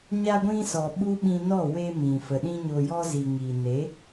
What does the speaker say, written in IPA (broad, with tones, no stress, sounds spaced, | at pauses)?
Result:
ɲ a˧ ɡʷ ĩ˧ s ɔ˨ ɓ u˦ ɓ ĩ˧ n ɔ˦˨ w e˧ m ĩ˨ f ə˨ ɗ ĩ˧ ɲ o˨ j ɔ˧ z i˨ ŋ iː˨ n e˨˦